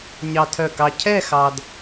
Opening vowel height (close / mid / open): open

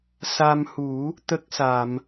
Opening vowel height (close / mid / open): open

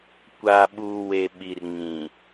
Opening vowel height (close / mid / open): open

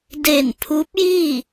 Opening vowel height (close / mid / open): mid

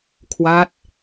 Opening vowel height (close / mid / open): open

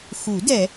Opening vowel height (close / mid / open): close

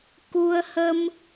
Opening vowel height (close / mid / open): close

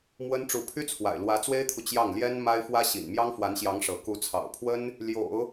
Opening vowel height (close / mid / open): mid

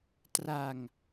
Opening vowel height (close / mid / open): open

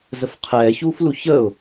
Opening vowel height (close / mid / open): mid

